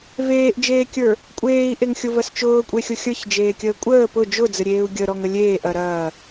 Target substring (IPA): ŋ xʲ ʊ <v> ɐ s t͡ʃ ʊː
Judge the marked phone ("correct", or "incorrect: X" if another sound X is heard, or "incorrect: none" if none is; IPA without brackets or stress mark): correct